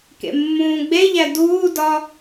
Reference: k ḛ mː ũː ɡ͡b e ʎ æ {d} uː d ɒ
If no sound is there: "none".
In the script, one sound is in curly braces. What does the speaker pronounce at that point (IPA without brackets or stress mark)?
d